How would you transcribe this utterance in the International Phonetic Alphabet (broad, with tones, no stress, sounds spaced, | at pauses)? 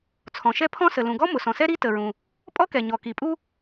t͡sʰ ɔ̃˩ ʃ ɛ˥ pʰ ɔ̃˥ s ə˩ l ũ˩ ɡ ɔ˥ m ʊ˩ s ɔ̃˩ s ɛ˥ ɾ i˥ t ə˩ ɹ ũ˩ | pʼ ɔ˥ k ɛ˩ ɲ ɔ˩ k i˩ pʼ u˥